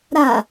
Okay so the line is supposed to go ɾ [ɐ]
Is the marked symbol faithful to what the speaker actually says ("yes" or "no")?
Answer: no